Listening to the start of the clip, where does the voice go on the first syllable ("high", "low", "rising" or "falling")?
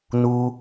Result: high